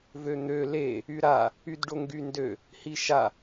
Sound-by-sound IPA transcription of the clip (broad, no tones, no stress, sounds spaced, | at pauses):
v ø n̪ ø l e | y ɾ a | y d ɖ o ŋ ɡ y n d ø | h i ʃ a